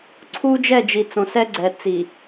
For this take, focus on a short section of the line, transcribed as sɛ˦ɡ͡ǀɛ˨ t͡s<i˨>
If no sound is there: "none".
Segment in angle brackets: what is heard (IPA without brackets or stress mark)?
i˨